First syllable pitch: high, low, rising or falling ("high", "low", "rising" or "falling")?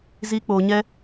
high